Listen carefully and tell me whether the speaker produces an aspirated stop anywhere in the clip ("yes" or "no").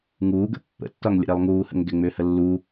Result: no